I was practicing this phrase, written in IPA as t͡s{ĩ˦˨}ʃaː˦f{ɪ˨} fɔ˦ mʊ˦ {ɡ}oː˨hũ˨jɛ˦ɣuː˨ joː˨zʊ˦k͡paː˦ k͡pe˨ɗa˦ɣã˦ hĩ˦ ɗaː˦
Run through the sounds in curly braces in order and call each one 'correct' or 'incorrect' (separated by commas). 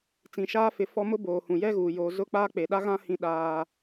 incorrect, incorrect, incorrect